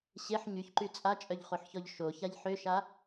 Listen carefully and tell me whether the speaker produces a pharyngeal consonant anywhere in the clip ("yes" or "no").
yes